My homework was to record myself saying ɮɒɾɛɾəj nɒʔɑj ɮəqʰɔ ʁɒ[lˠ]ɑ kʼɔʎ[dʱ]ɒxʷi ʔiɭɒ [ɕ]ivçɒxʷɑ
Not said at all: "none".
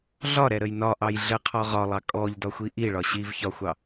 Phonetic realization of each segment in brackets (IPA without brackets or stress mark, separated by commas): lˠ, d, ɕ